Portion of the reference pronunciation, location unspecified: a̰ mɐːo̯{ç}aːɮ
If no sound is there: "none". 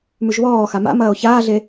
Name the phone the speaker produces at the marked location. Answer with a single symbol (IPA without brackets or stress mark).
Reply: ç